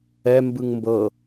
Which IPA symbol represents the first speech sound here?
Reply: ɛ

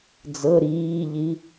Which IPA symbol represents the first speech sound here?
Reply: d͡z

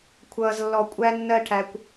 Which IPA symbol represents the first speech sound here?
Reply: kʷʰ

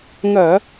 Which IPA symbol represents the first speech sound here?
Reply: ŋ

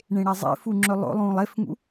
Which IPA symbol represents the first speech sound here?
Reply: ɳ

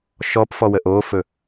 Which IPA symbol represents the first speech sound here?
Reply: ʃ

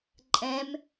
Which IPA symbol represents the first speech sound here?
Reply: ǃʼ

